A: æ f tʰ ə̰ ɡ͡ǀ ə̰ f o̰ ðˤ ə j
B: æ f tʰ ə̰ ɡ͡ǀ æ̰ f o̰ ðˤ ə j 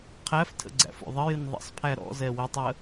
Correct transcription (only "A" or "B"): B